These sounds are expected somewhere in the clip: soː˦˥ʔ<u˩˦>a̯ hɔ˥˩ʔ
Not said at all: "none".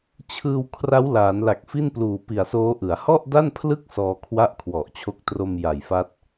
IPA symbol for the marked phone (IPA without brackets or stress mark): ɯ˩˦